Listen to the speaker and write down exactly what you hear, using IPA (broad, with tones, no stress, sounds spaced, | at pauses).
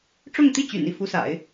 ʈ͡ʂ ʊ˥˧ ŋ t̪ i˥˩ t͡ɕ y̰˨˩ n i˥˩ f u˧˥ s a̰˨˩˦ ɪ̯